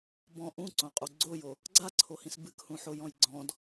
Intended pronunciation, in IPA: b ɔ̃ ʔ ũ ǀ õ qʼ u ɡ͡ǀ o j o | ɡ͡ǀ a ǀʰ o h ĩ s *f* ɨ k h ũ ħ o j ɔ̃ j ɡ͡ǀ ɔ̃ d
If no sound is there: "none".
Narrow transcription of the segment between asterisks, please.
b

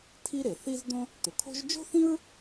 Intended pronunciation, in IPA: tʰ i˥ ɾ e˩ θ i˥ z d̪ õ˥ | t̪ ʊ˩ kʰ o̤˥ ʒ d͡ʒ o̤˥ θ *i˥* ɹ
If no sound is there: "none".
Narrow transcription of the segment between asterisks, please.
ĩ˥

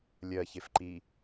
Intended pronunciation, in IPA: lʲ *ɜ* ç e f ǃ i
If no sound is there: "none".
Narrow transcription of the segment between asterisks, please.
ɜ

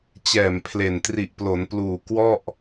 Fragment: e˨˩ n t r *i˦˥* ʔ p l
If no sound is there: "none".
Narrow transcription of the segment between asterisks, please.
i˨˩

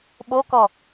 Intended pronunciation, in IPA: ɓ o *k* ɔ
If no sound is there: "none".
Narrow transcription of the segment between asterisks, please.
k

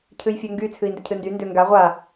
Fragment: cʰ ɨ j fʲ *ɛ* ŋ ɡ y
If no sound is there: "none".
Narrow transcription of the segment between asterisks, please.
ø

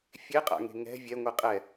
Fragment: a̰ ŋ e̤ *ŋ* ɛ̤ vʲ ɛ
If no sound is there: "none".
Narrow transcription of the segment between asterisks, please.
ŋ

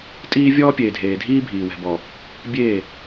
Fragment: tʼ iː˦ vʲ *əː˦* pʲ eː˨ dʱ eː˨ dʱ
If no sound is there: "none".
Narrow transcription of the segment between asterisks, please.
ɔː˦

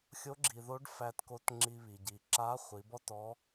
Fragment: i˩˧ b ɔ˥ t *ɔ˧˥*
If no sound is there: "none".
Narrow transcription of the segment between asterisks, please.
ɔ˧˥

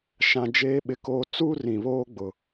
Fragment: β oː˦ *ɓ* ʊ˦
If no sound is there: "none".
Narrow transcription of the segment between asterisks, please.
ɡ͡b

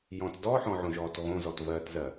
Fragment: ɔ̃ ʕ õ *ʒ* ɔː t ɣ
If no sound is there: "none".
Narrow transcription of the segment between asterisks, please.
ʒ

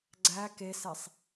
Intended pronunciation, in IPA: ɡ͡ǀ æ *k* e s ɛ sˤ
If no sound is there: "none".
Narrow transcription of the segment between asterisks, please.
k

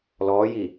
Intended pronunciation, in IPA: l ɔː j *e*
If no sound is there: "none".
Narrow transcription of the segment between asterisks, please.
i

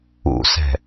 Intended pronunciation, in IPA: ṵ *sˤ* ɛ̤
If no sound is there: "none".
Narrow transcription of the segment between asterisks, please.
s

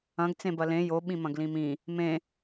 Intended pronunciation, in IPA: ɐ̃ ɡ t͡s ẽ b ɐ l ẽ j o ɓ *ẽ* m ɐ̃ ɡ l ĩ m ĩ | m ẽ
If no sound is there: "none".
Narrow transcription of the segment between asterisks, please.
ĩ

